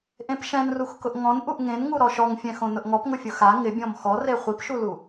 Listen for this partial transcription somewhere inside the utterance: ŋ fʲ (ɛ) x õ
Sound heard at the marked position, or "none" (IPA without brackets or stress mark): ɛ̃